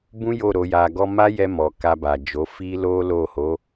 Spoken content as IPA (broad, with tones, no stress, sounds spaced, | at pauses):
b ũ˦ j o˦˨ ɾ o˧ j a˧ ɡ ɔ˧ m a˦ j ɛ˧ m ɔ˨ k a˧ b a˨ d͡ʒ o˨˦ f i˦ l o˦ l o˦˨ h o˨˦